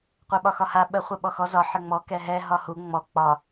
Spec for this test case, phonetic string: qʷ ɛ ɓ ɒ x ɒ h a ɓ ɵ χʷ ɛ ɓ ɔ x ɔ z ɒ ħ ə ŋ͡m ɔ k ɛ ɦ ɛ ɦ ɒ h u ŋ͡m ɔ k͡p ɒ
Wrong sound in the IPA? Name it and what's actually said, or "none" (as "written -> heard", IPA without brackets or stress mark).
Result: ɵ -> ə